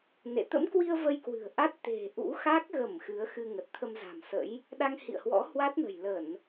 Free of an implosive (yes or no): no